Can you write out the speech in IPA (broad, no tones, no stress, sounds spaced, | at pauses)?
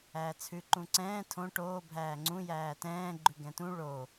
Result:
æː t͡sʰ ʉ ǃ ũ ǀ ɛ̃ː tʰ õ ʈ oː bʱ æː ŋ͡ǀ ũ j æː t ɛ̃ː ɡ͡ǃ ʉ ɡ ɛ̃ t ũ ɭ o